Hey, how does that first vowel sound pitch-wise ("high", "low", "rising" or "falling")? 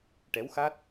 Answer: rising